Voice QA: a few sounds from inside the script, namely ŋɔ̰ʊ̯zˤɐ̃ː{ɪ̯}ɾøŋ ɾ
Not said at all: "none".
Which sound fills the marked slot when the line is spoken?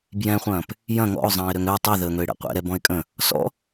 ɪ̯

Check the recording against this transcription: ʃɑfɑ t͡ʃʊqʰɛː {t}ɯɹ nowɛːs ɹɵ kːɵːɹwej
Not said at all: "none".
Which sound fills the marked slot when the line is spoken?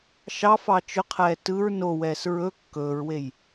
t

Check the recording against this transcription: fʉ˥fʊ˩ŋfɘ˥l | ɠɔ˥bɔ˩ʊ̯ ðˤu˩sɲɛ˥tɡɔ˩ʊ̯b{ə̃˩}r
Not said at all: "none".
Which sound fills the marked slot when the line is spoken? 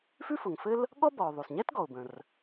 ə̃˩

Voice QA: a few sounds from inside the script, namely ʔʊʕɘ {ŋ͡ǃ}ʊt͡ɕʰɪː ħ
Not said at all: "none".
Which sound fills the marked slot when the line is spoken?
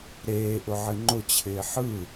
ŋ͡ǃ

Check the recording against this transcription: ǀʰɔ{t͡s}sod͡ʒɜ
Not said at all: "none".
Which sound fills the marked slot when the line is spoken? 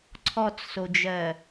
t͡s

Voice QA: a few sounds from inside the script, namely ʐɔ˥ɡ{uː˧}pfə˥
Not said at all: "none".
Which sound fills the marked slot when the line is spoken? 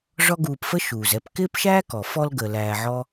uː˧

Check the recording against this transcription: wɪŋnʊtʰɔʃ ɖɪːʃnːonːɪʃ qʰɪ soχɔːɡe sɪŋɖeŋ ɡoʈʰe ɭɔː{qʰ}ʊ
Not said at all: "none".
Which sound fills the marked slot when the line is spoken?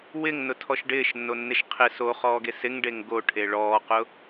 q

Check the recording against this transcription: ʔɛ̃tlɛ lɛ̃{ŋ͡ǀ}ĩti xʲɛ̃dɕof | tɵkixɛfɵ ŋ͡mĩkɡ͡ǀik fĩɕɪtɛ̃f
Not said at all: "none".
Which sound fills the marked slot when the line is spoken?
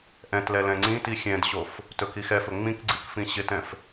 ŋ͡ǀ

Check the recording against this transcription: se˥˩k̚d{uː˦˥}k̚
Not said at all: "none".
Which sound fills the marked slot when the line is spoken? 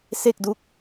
u˦˥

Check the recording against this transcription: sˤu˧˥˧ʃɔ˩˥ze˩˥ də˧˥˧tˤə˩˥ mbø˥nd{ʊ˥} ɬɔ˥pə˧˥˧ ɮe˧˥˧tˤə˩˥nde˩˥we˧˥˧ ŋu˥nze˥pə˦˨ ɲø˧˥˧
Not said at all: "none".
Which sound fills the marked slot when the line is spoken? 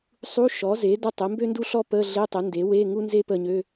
u˥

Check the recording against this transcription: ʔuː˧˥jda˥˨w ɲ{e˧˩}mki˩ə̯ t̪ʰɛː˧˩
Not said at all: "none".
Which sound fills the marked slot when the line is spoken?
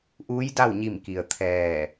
i˧˩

